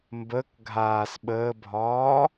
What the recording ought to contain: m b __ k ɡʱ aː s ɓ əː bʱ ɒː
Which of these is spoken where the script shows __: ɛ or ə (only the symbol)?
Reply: ə